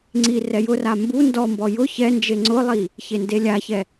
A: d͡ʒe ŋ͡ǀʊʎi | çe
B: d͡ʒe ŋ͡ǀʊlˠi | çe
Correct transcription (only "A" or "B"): B